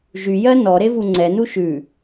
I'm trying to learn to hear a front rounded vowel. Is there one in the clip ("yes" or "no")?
yes